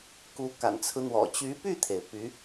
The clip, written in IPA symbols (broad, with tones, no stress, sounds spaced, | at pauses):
k u˧˥ k a̰˨˩ n t͡sʰ ɹ̩˦ n̪ w ɔ̰˨˩ t͡ɕ y˧˥ p y˥˩ t̪ʰ e˩ ɪ̯ p y˧˥